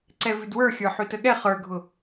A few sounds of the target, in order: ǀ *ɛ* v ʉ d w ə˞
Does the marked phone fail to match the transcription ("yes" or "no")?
no